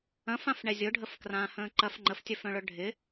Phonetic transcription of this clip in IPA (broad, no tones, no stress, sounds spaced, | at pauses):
ɐ̃ f ã f ɳ ɛ zʲ ʊ ɖʱ ə f k r ãː h ə̃ː ǃ ɐ f ŋ͡ǃ ə f tʲ œ f œ̃ ɭ œ ɖʱ ɪ